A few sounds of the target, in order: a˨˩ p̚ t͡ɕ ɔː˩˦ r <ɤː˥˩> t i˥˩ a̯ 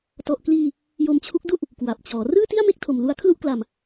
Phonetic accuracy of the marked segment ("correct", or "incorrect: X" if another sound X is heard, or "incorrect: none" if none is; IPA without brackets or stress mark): incorrect: ɯː˥˩